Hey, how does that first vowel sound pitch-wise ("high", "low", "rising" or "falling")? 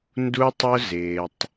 high